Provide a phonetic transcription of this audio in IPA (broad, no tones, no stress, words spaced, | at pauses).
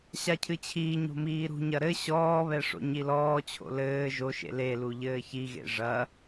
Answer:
ɕacʰɨt͡ɕʰiːɲo̤ miːɾṳɲɐ ɾɘ ɕɔːβɛ ʂo̰ɲilɔːt͡ɕʰo̰ lɘː ʒoʃḛ lelu ʎɘːçiɣḛ ʐɐ